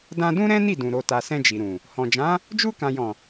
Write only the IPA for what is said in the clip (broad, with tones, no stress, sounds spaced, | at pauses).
d ã˧ d ũ˦ ɾ ɛ̃˦ n i˦˨ d ũ˨ ɾ o˨ t a˨ s ɛ̃˧ d͡ʒ i˨ ɾ ũ˨ | h ɔ̃˨ d͡ʒ ã˨˦ | d͡ʒ u˧ k ã˨ j ɔ̃˨